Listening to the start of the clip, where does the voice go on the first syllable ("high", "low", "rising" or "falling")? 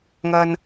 low